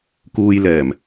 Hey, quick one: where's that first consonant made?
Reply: velum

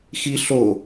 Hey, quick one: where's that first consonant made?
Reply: velum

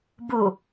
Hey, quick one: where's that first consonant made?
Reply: lips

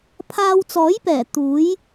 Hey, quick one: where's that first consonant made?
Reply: lips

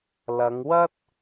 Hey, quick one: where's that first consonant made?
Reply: tongue tip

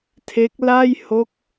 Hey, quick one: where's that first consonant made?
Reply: tongue tip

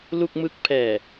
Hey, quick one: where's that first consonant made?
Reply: tongue tip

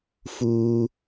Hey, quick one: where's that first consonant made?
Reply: lips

